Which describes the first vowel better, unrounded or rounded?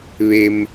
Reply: unrounded